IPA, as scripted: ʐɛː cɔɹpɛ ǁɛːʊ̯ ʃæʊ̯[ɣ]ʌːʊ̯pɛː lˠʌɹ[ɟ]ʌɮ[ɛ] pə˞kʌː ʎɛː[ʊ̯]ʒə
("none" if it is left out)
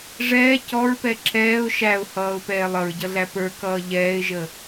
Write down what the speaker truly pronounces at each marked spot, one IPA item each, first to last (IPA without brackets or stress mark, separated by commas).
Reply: h, ɟ, æ, ɪ̯